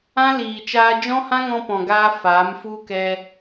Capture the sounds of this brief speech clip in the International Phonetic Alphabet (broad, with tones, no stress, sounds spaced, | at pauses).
ã˦ l iː˨ t͡ʃ aː˧ d͡ʒ ɔ̃˦ h ã˦ ŋ ɔ̃˧ p ɔ̃˨ ɡ aː˧ f aː˨˦ m f u˦ k ɛ˧